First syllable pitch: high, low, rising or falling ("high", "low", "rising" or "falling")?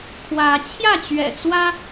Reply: rising